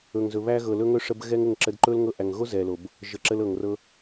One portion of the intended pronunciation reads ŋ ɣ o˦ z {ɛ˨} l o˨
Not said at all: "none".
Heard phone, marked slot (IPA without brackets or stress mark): ɛ˨